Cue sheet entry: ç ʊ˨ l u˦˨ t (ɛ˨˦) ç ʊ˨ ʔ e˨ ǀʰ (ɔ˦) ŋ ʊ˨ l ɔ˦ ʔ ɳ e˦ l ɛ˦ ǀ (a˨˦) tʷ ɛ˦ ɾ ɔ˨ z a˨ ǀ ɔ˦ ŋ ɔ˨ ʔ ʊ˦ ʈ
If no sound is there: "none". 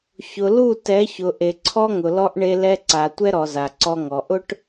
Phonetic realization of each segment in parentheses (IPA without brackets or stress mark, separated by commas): ɛ˨˦, ɔ˦, a˨